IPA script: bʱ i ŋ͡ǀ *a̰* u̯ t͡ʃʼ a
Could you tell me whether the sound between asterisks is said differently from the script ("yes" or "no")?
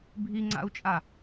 no